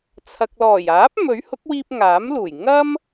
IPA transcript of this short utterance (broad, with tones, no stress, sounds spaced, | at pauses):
t͡sʰ ɐ˨ k̚ l ɔː˨˩ j aː˨˥ p̚ m ɵ˨˥ ɥ h ʊ˨˥ k̚ w iː˧ p̚ ŋ aː˨˥ m l uː˨˩ j ŋ ɐ˥ m